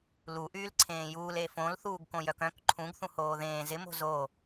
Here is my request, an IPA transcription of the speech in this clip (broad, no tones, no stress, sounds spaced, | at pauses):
l u ʔ yː l ǀʰ ẽː j uː l e f õ l θ uː ɡ k õ j œ k œ̃ k ǃʰ ũ ɡ θ ũ h oː ð ẽː z ɪ m o̤ z o